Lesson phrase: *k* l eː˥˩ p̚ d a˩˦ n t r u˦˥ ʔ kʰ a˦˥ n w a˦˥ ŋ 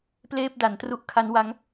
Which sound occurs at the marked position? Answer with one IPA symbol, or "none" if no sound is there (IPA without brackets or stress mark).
p